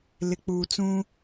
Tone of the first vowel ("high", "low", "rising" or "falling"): low